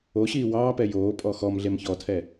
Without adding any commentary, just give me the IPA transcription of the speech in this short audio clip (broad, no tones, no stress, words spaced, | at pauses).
oɕiː wɑːpɛ joːpʼɔ xɔmɮem çɔtʰɛ